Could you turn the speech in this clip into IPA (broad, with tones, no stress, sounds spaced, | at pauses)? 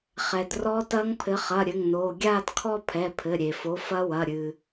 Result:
χ ɛ˩ d r ɔ˦˥ t ɐː˦˥ ŋ pʰ ɘ˨˥ χ ɐ˩˧˩ ɾʲ ɘ˩˧˩ ŋ n oː˩˧˩ ɡʲ aː˥˧ d kʰ ɔ˥˧ pʰ ɛ˩˧˩ pʰ ɘ˩˧˩ ɾʲ e˩ f o˨˥ f ɐ˦˥ w ɐ˩˧˩ ɾʲ ɨ˩